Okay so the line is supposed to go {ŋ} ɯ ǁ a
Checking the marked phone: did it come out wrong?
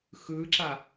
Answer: yes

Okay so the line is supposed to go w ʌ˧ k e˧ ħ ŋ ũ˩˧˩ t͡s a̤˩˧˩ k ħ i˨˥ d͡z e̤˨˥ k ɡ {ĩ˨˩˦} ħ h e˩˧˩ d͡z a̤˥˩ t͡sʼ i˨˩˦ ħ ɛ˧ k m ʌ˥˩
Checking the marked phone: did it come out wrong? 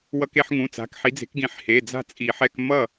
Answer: no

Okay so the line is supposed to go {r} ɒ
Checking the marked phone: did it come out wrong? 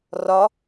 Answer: no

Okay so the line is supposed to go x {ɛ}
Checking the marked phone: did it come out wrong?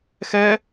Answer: no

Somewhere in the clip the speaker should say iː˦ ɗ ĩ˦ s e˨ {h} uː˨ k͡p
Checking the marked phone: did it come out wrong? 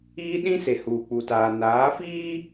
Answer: no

